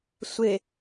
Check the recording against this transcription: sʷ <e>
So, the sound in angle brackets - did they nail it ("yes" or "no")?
yes